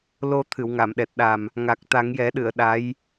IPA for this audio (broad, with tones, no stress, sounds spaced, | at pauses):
l o˧ t̪ʰ ɨ˨˩˨ w ŋ a˨˩˨ m ɗ ɛ˨˩ t̚ ɗ a˨˩ m | ŋ a˨˩ k̚ t̪ a˨˩˦ ŋ j ɛ˨˩˦ ɗ ɨ˨˩˨ ə̯ ɗ a˧˥ j